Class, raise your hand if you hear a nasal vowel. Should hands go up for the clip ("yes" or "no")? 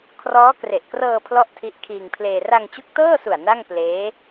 no